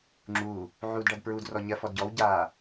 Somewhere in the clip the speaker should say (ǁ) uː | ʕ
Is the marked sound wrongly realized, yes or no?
yes